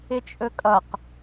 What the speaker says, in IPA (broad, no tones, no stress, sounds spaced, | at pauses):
ɪ t͡ʃʼ ɵ kʼ ʌ q